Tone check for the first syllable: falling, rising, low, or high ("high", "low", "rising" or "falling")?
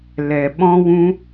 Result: low